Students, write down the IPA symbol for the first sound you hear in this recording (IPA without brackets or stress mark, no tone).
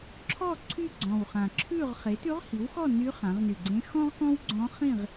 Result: ǁʰ